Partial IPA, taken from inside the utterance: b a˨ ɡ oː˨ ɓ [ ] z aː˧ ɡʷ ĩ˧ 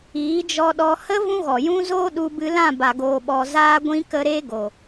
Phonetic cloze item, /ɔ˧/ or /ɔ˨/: ɔ˨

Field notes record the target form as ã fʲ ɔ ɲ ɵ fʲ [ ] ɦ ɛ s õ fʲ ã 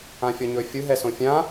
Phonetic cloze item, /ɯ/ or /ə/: ɯ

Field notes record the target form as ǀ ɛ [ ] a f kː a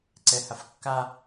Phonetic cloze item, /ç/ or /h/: h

